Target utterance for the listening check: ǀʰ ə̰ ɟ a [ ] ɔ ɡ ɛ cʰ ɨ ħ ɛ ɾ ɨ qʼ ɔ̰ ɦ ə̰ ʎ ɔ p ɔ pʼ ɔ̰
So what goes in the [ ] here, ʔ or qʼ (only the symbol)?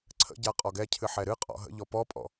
qʼ